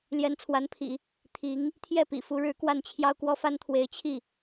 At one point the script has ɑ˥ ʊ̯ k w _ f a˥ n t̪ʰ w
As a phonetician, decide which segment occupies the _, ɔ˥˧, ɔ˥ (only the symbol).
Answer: ɔ˥